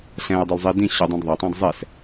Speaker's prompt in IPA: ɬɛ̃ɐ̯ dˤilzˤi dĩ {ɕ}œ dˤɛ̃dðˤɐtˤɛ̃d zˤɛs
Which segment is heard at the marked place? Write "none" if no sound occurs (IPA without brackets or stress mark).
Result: ɕ